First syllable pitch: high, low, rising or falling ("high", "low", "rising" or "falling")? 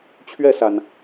falling